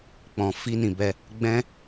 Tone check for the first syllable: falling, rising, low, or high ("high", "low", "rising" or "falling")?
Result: low